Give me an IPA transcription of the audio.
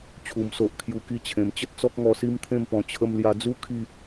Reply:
t͡ɕʰu˨˩mso˨ʔkʰju˨˩ ki˧t͡ɕʰẽ˨˩mt͡ɕə˦t̚ t͡sɔ˦k̚ŋɔ˧ si˦mt̪ʰẽ˥˧mpɔ̃˧ t͡ɕʰə˧mlja˧d͡zu˦ kʰi˥˧

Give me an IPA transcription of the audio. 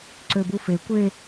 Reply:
ǀøbufe kʷe

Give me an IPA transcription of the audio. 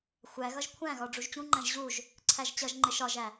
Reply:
xʷæɣʌʒ kʷʰæ̃ɣɒ ɖ͡ʐuʒt͡ɕũŋ͡ǃæ̃ʒ ʑuʒ | ǀʰæʒt͡ɕʌʒŋ͡ǃɪ ʃɒʒæ

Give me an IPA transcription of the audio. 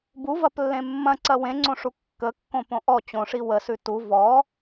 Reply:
buvɐplːẽ mːɐ̃ǀɐ wẽŋ͡ǀõʂu kːəkːõpõ ʔɔ t͡ɕõʂi wəsʉ tu vɔ

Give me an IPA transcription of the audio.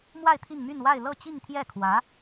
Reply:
mwa˥˧ɪ̯ t̪ʰi˥˧ŋmy˥˧nwa˥˧ɪ̯ lɤ˥˧ t͡ɕi˥˧ŋt̪ʰjɛ˥˩kʰwä˧˥

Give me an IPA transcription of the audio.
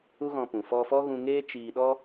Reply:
u˦ɣɔ̃˧pũ˨ fɔ˧fɔ˦ɣũ˧ŋeː˦ t͡ʃiː˧ɗɔ˦

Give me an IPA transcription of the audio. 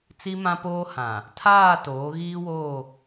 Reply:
t͡si˦mã˦poː˦hã˨ | tʰaː˦˨toː˨˦ ɣiː˦ woː˦˨

